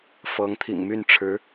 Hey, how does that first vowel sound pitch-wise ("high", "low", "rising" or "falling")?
rising